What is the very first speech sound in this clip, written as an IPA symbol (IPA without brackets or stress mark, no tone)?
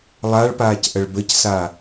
lˠ